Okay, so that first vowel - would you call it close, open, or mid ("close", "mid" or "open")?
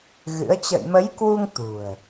close